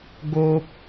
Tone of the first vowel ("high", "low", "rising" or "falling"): high